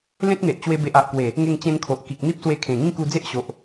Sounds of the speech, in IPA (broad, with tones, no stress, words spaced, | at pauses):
lẽ˦t̚n̪e˨ʔt͡ɕwe˧ be˨ʔa˨ʔ kwe˨˩ | ŋe˥˧ŋt͡ɕẽ˦nkʰo˨ʔ ki˨k̚n̪i˦p̚ swe˧kʰẽ˨˩ ŋĩ˥˧ku˧d͡ze˦ʔɕo˨ʔ